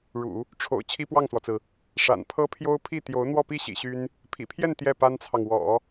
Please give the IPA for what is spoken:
ɻ ṵ˨˩˦ | ʈ͡ʂʰ o̰˨˩ ʊ̯ t͡ɕʰ i˥ p w ɑ˥˩ ŋ s w ɔ˩ t͡s ɹ̩˩ | ʂ a̰˨˩ n pʰ ɤ˥ pʰ j o˥ ʊ̯ pʰ i˥˩ t̪ j o˧˥ ʊ̯ n̪ w ɔ˥˧ p i˥˩ ɕ ḭ˨˩ ɕ y˥ n | pʰ ḭ˨˩ pʰ j ɛ˥˧ n t̪ j ɛ˥˩ p a˥ n t͡sʰ ɑ˨ ŋ w ɔ̰˨˩˦

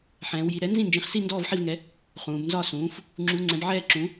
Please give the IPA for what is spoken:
ħ ɛ̃ː˩˧ w j i˩˧ ɾ ɛ˩˥ n z ĩ˥˩ n d͡ʒ ĩ˩˥ χ s i˥˩ n d ɔː˥˩ v ħ i˥˩ v ŋ ɛ˩˥ | χ ũː˩˧ b n z ɒ˥˩ s ũː˩˥ f | ŋ͡ǁ u˩˧ ŋ͡ǀ ɛ̃˩˧ b ʕ ɛː˥˩ ǁ ũ˩˥

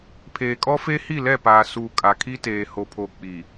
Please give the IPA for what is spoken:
pʰ eː˨ kʼ ɔ˦ f e˦ h i˦˨ l ɛ˦˨ p aː˨ s uː˨ kʼ a˨ kʰ i˦ t eː˨ h o˨ pʰ o˨ k͡p i˨

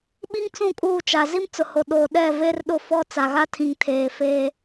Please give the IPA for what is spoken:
ɓ i˦ ŋ t͡s ũ˦˨ kʼ uː˦˨ t͡ʃ a˨ z i˦ m t͡s ʊ˨ h o˨ ɗ oː˨ ɗ ɛ˦˨ v e˦ r ɗ ʊ˦˨ f ɔ˦ t͡s a˨ ɣ a˦ tʰ ĩ˨ ŋ tʰ eː˨ f eː˦

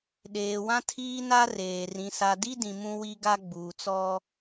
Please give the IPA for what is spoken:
ɗ eː˨ w ã˦ tʰ iː˦ n a˦ r eː˨ r ĩ˨ s a˨ d i˦ d ĩ˨ m ũ˦ w i˦ ɡ a˦ ɡ͡b uː˨ t͡s ɔ˦

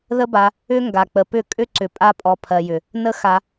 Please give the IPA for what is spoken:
ð ə˦ b a˧ | ʏ˦ ŋ ɡ a˨ k͡p ə˨ p ʏ˦˨ kʼ ʏ˦ ǀ ʏ˨ pʼ a˧ pʼ ɔ˨ pʰ ɜ˨ j ʏ˨ | n ə˦ x a˧

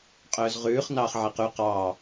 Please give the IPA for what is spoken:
qʼ œː z ʁ ʉː χ n ɑː χ ʕ æ q ʉ q ɑ

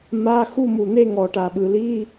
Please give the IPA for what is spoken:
m a˧˥˧ x u˦˨ m u˨˩ n̪ e˦˨ ŋ ɔ˧˩˧ ʈ a˨˩ ɓ ɯ˨˩ l i˧˥˧

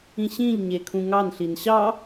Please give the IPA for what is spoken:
ĩ ɕ ĩ ʎ ɲ e kʰ ũ ŋ ɑ n ɬ i n ɕ ɑ

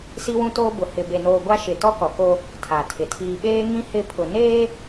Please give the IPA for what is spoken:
s i˦ w ũ˦ t oː˦ b ʊ˨ h ɪ˨ b e˨ n oː˨ ɡʷ a˦ ʃ ɪ˨ t ɔ˦ k ɔ˨ k o˦ | tʰ a˨ tʰ ɪ˨ tʰ iː˨ ɓ eː˦ ŋ ĩ˦ h ɪ˦˨ pʰ ʊ˨ n eː˦

